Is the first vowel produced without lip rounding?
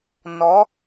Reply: no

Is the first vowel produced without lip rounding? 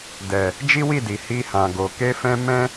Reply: yes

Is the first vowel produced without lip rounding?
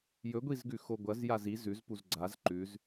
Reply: no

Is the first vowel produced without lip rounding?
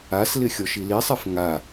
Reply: yes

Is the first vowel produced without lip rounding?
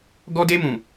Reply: no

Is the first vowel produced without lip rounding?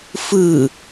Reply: yes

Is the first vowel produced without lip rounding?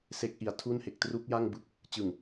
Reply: yes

